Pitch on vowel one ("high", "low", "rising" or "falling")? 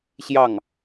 falling